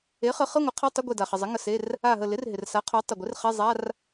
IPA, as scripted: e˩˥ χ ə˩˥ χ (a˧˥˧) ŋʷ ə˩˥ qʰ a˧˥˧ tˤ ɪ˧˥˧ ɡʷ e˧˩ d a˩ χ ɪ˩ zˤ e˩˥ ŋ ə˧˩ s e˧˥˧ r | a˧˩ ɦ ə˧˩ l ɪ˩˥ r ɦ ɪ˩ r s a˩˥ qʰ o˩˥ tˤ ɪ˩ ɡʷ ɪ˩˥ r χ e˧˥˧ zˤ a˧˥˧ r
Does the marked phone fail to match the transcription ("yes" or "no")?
yes